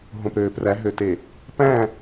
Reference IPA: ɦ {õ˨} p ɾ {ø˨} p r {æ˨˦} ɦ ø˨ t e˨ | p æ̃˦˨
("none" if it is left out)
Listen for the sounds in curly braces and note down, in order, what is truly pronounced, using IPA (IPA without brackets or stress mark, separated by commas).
õ˨, øː˨, æ˨˦